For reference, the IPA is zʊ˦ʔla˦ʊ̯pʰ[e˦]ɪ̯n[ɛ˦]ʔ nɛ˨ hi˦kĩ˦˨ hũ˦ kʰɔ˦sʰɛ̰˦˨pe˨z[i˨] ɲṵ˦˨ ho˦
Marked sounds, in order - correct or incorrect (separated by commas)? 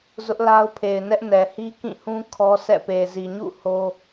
incorrect, correct, correct